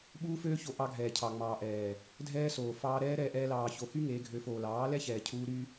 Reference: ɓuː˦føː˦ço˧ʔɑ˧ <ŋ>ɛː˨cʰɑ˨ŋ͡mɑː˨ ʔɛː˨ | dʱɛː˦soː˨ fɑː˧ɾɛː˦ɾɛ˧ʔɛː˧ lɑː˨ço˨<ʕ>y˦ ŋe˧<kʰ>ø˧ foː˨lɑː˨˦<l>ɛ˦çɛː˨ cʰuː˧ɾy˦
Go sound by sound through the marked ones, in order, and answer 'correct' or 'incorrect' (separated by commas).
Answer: incorrect, incorrect, incorrect, correct